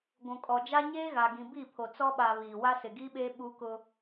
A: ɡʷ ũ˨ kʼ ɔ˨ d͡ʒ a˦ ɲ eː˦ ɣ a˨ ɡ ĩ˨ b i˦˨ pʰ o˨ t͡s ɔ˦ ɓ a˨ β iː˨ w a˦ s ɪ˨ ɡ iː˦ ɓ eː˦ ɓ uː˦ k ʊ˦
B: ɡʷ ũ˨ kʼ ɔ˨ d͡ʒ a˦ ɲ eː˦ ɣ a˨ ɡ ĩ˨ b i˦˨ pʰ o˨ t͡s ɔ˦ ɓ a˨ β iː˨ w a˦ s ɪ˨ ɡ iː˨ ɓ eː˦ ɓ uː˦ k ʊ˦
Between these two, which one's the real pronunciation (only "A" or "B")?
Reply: A